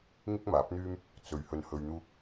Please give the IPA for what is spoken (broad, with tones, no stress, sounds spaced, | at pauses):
ŋ ɪ˥ k̚ m aː˨˥ p̚ n̪ yː˥ m | t͡s ɵ˧ ɥ h ɵ˧ n h ɵ˧ ɥ n̪ uː˥ k̚